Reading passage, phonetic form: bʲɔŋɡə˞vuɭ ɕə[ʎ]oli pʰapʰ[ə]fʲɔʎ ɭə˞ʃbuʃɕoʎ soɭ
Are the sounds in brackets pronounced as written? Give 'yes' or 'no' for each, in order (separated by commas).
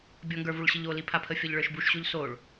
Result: yes, yes